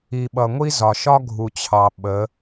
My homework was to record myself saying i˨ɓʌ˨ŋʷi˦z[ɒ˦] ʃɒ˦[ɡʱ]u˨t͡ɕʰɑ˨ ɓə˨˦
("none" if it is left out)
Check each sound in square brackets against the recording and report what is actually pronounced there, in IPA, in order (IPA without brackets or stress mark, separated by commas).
ɒ˨, ɡʱ